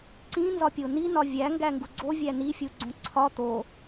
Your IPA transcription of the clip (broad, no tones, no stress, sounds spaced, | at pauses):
ǀ ĩ n z ɒ pʲ o n i n ɒ vʲ æ ŋ ɡ æ ŋ ɡ u ɡ͡ǀ o vʲ æ n i fʲ u ɡ͡ǀ õ ǀʰ ɒ t̪ o